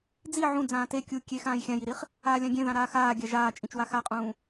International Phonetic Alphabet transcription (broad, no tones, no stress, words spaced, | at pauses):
d͡zi ʕũ d͡zãːte kʲu kʲe xãːjxʲãjiɾiχ | aːlʲãɡʲẽðã ɾaːxaːɡʲa ʒaːt͡ʃʼĩt͡ʃwa xaqʼũː